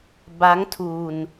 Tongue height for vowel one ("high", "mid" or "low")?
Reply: low